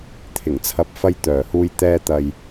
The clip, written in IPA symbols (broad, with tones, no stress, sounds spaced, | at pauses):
t̪ʰ ɪ˨˩ ŋ t͡sʰ ɐ˨˥ p̚ f ɐ˧ j t̪ œː˨˩ h uː˧ j t̪ ɛː˧ t̪ ɐ˨ j